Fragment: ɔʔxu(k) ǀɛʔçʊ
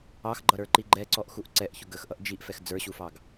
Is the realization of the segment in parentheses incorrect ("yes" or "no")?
yes